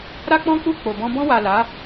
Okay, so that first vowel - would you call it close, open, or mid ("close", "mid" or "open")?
open